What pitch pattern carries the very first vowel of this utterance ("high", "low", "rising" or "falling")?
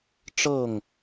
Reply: falling